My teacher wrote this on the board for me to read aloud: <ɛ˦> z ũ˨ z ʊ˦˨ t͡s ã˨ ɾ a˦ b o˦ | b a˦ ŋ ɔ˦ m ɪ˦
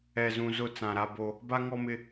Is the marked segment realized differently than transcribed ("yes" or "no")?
yes